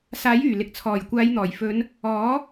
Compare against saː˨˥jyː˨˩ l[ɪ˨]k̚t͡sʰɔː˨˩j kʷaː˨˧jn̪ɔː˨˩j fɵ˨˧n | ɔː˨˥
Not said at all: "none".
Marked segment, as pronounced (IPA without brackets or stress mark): ɪ˨